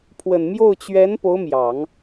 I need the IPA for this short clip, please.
pʰwə˨˩nmjo˥˩ʊ̯ t͡ɕɥɛ˧˥n po˧˥ʊ̯mjɑ˨˩˦ŋ

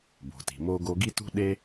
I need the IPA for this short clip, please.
bo̤˩ti̤˩ mo˥ɡo˥ ɡi˥tṳ˥ ɗe˥

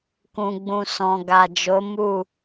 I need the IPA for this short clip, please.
kũ˨ɡ͡bũ˨ sɔ̃˨ɡa˨d͡ʒo˨˦ mu˦˨

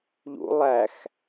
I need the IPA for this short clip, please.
ʎṵ lˠæx

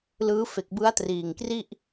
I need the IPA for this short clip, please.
lɯː˦˥ fe˨˩k̚bɯ˦˥a̯triː˨˩ŋkri˥˩ʔ

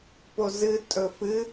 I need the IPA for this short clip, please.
pozɨ tʼɵfɨ

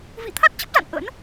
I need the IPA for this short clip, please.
vḭ˧˨ t̪ʰa˦˥t̚t͡ɕə˦˥p̚za̰˧˨n ʔə̰˧˥n

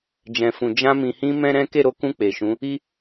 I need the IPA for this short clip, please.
d͡ʒɛ̃˨fũ˨ d͡ʒã˧ mĩ˨hĩ˧ mɛ̃˦ɾɛ̃˦ ke˦˨ɾo˨˦kũ˧ k͡pe˨ʃũ˨˦ | i˦

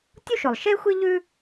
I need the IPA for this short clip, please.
tʲu˥ʃʊ˩lˠ ʃe˥ xʷi˥ʎʉ˥

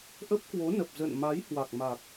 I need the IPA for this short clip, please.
ʔə˦˥p̚kwo˨˦ nə˨˩p̚ zə̰˧˨n ma˨˦jhwa˨˩k̚ma˨˩k̚

